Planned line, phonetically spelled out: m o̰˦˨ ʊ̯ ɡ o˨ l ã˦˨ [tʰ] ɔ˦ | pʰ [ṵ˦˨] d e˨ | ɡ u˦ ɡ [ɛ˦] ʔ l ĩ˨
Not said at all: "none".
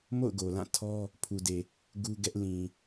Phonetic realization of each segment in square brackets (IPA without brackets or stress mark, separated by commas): tʰ, u˨, ɛ˦